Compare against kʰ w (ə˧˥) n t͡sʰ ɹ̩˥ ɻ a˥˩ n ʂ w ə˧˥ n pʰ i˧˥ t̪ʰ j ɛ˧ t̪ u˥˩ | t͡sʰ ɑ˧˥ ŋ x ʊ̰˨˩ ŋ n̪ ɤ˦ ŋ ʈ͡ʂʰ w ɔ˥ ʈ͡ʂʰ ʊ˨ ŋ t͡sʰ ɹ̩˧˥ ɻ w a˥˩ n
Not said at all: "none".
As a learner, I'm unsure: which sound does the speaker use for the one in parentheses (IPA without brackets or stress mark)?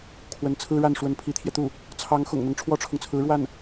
ə˧˥